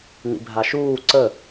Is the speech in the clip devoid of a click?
no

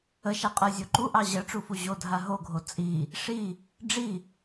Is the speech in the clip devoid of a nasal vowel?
yes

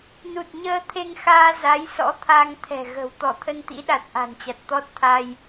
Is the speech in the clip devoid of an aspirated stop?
no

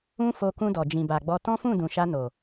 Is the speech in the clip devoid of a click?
yes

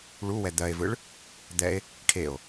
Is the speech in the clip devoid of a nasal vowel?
yes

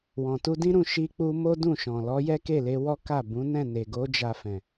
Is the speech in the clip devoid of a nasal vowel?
no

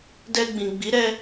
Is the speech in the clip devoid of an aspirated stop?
yes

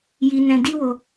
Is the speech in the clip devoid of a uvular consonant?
yes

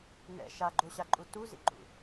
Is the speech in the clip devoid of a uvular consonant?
yes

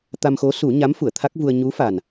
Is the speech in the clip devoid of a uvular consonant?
yes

